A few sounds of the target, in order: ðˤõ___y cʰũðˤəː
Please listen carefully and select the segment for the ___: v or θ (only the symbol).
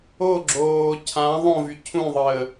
v